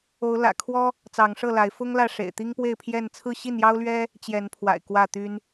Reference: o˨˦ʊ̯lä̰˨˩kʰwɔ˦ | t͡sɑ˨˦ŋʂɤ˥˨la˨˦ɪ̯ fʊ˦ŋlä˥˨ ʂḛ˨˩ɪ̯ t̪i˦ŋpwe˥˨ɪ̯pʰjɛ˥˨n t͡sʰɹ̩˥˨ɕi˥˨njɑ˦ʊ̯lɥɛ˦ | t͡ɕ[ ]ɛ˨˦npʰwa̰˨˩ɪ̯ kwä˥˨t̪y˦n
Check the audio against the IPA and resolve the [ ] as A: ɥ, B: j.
B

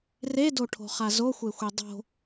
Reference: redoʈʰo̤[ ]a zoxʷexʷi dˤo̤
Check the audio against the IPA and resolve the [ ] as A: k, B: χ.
B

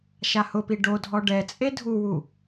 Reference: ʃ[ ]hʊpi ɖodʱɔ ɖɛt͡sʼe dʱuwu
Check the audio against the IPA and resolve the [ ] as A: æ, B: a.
B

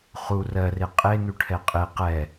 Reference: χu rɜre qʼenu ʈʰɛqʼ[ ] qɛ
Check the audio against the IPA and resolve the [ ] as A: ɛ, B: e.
B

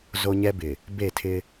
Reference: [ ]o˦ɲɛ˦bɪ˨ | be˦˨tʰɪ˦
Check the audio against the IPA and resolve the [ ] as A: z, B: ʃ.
A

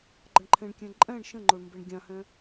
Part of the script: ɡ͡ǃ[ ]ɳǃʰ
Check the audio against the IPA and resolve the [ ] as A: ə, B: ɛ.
A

